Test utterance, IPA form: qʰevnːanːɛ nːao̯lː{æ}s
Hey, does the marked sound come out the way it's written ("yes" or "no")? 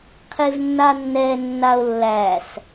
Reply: yes